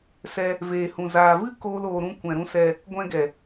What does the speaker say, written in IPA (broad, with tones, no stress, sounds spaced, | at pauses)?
s ɛ˧ | v eː˨ h ũ˨ z aː˨ v ɨ˦ k oː˦ l oː˧ ɾ ũ˦ kʷ ɛ̃˨ ɾ ũ˧ s ɛ˧ | ɡʷ ɛ̃˧ ɡ ɛ˨